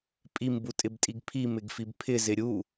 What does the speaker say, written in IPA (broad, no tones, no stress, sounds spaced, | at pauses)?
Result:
pʼ i m b u tʼ ɪ b tʼ i ɡ pʰ i m ɪ ɡ f i b pʰ ɪ z ɪ ɾʲ u